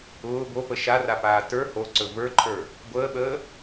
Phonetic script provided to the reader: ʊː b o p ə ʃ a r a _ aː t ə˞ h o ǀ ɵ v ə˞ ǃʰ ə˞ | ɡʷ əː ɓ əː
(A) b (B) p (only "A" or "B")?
B